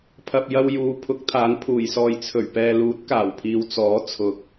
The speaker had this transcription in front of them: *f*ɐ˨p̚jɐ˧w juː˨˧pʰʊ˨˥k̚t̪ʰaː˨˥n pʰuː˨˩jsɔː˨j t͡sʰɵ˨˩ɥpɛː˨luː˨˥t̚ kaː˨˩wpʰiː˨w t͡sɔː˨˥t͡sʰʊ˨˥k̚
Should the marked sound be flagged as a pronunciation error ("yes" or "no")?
yes